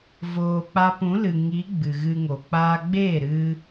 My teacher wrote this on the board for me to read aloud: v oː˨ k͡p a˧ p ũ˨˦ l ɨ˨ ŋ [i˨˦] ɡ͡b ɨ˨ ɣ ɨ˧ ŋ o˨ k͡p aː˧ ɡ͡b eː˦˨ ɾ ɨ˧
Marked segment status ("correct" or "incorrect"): correct